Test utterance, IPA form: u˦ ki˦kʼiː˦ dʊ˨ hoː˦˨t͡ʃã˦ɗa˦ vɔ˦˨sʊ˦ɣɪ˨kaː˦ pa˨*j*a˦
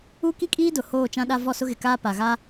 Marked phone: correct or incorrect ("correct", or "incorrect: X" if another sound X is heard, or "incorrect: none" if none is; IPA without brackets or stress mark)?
incorrect: ɣ